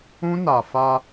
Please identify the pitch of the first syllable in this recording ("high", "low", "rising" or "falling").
high